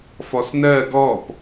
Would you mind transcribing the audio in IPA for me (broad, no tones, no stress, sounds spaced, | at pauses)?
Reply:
f ɔ s n ɜ ɡ ɔ p